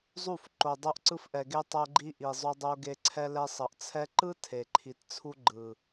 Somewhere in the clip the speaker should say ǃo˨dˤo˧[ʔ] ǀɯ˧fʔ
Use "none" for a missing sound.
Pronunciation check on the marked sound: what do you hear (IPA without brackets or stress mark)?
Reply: ʔ